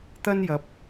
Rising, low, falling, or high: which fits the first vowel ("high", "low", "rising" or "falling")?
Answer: high